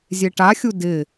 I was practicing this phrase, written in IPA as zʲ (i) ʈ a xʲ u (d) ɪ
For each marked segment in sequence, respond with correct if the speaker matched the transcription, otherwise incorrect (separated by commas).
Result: incorrect, correct